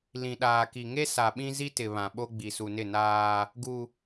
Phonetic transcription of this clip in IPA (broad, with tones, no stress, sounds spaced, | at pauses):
l ĩ˨ ɗ aː˨ k i˨ ŋ e˦ s a˨ ɓ ĩ˦ z i˦ t ɪ˨ β ã˨ ɓ o˦ ɡ͡b i˨ s u˨ n ɪ˦˨ n aː˦ | ɡ u˦